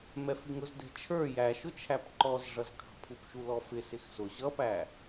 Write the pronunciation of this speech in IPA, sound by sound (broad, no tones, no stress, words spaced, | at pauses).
mɛfiŋʊz dɛ̤t͡ʃʰə˞ jæʃʊt͡ʃʰæp ǃɔzʐʌzkʰɑ̤pʰup ʃulɔfɪ sɪxsʊ ʑʌpæ